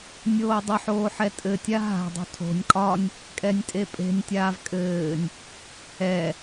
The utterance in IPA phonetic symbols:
nʲ oː dˤ ə ħ oː ħ ɛ tʼ ɘ tʲ a ɦ a̤ dˤ ṳ tʰ o̤ nʲ kʼ ɒ nʲ | kʼ ɛ nʲ tʼ e pʼ e̤ nʲ tʲ aː v kʼ ɘː nʲ | ɛ

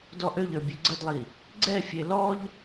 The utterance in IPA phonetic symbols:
d ɔ ʔ ø ʎ ə˞ bʲ ø ɡ͡ǀ ə d lˠ i | ɡ͡ǀ ɛ fʲ e l ɔ ʎ

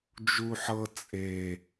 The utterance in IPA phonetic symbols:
d͡ʒ u ħ ɤ t͡sʼ e

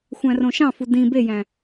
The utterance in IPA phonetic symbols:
xʷ æ̃ r õ ʃ ɑ̃ f u d ĩ b e j æ̃

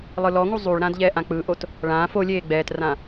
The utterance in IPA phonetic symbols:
lˠ ɯ l ɔ ŋ u zˤ u ɭ ɾ ã d ʎ ɛː ʔ ã k͡p ɯ ʔ o t | ɭ ãː f o lʲ eː ɡ͡b ɛː t r ã

